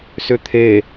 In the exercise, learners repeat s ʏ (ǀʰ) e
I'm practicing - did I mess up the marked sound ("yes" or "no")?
yes